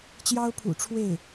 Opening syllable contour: high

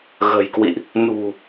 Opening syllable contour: low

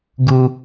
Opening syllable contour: low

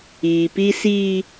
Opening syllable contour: low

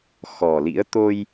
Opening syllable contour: low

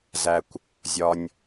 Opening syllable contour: low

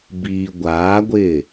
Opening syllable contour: low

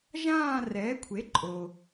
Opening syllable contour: falling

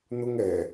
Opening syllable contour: high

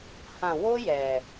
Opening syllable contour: low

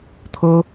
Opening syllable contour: high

